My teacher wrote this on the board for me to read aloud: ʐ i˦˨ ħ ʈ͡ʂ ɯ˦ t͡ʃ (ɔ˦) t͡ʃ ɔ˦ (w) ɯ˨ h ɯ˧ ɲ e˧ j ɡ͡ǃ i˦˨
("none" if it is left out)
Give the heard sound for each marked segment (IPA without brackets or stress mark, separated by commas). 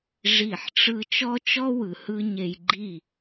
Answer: ɔ˦, w